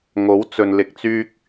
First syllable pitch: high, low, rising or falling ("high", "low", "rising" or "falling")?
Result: rising